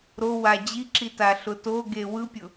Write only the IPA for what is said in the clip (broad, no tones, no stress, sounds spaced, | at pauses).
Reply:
ɾ o w a d͡ʑ i ǁ i t a ɬ ʊ t o ɡ e w ɯ pʲ ʊ